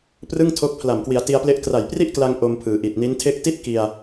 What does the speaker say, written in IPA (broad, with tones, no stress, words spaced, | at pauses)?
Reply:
prɯ˥˩ŋtʰo˦˥k̚ pʰla˨˩mkwi˩˦a̯ti˧a̯ple˦˥ʔ kra˨˩jpri˥˩ʔkla˧ŋ ʔo˧mpʰɯː˩˦ ʔi˨˩t̚ni˦˥n tʰe˦˥k̚ti˥˩t̚ ki˧a̯